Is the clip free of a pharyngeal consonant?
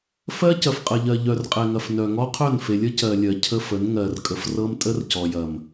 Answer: yes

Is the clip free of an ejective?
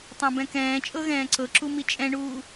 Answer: no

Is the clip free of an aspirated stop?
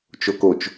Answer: yes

